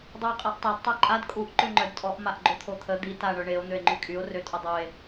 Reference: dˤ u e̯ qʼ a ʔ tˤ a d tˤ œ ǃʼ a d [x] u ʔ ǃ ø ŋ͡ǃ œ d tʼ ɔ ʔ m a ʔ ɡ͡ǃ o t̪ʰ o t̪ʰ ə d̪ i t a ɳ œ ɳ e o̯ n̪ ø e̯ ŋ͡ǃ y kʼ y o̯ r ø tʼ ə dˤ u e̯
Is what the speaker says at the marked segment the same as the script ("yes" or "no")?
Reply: no